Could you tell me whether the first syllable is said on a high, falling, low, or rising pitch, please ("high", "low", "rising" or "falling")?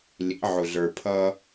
rising